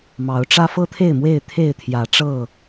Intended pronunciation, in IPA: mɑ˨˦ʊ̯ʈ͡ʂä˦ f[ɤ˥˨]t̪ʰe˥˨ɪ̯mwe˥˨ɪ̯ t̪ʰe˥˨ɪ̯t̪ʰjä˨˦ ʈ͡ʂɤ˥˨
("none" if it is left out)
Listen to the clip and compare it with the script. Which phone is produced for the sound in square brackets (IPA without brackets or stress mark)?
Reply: ɤ˦